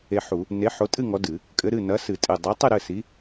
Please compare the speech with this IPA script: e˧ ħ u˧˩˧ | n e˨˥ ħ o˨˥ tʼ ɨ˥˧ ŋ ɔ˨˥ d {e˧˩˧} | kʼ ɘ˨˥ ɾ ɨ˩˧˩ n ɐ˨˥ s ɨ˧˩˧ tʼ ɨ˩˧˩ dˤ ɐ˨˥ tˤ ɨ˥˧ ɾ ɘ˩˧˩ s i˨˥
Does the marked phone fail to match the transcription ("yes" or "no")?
yes